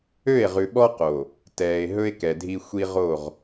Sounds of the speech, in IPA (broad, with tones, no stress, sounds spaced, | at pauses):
ø˦˨ e̯ ʁ ʉ˨ ɓ ɔ˦ q o˨ | t ɛː˨ e̯ ɦ ɵ˦ e̯ k ɛ˨ dʱ i˦ xʷ i˦ ʁ o˦˨ ʁ